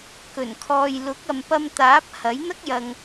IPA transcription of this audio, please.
k ɵ˨˩ n kʰ ɔː˨ j l ʊ˨˥ k̚ ɐ˨ m p ɐ˧ m t̪ aː˨˥ p̚ h ɐ˨˥ j n̪ ɐ˥ k̚ j ɐ˨ ŋ

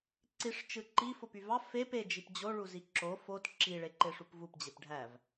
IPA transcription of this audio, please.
ǀ i ʂ t͡ʃ ɯ ǃ i f o p y v ɑ f e p e d͡ʒ i p d͡ʑ o ɭ u z i ǁ o f o t ǁ i ɭ e ǃ e ʂ u p v u p d͡ʑ e p ɖʱ æ v

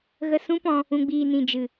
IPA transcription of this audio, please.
ɣ ə˧ s ũ˦ p ɔ̃˧ | ũ˨ ɡ͡b iː˨ n ĩ˨ d͡ʒ ɨ˨

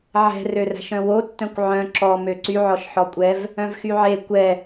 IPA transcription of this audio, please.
ʕ ɛ̤ r ø r æ̤ ʃ œ̃ w o tː œ̃ kʷ ʕ œ̃ ǁ ɔ m ø ǀ y ʕ ɔ ʃ ħ ɔ kʷʼ ɛ v | œ̃ v x y ʕ e kʷ ɛ

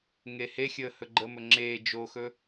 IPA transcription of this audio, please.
ŋ e h e xʲ əː h ɵ ɡ͡ǃ ə m ɵ ŋ͡ǁ e d͡ʒ o x ɵ

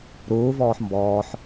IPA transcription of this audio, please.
ɾ uː v ɔː ħ m b ɔː ħ

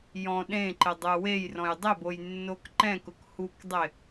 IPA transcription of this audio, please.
j ɔ̃ ɗ ẽ ǃ ɪ dˤ u w e j r ɔ̃ j dˤ ɪ b o j nː o k ǃ ɛ̃ k ʊ k h u k dˤ ɪ

